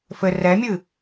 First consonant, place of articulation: labial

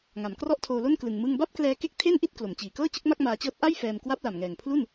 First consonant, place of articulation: velar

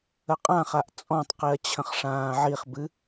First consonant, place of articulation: uvular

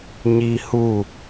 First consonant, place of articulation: palatal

